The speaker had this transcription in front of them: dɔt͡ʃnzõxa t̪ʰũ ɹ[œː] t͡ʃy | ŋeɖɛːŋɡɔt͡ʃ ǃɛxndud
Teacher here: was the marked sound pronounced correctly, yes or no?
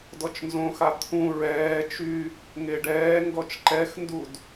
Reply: no